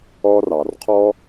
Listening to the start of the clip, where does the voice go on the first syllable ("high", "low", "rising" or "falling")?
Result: low